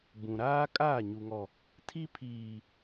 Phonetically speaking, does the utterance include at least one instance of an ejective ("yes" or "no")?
yes